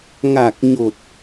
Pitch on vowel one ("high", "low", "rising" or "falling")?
low